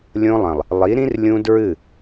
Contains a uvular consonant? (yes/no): no